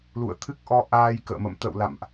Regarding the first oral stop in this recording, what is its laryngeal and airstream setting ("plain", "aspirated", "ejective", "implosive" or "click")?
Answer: aspirated